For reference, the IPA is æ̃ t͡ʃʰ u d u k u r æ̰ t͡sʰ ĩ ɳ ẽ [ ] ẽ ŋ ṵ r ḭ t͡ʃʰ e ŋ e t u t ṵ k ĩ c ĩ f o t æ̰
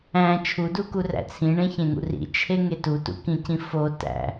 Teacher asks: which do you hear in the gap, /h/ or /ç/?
ç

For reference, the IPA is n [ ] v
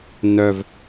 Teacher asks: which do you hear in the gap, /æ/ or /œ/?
œ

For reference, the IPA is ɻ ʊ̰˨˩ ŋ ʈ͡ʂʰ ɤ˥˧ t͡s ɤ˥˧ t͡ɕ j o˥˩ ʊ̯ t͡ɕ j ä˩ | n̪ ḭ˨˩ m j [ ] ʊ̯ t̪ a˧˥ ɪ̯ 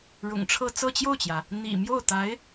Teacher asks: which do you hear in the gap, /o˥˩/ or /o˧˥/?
o˥˩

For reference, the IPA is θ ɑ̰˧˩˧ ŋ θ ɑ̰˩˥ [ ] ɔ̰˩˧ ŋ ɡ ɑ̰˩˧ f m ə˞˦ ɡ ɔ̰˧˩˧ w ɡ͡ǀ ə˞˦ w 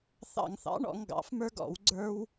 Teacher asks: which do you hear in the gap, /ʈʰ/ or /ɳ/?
ɳ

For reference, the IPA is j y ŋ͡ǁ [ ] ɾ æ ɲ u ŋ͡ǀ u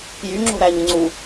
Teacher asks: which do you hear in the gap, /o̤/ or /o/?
o̤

